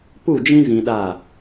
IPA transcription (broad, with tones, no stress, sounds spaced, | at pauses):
p u˦˨ d͡ʒ ĩ˦ z ĩ˧ ɗ a˦˨